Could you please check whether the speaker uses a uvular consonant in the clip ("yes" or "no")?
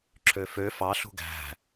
no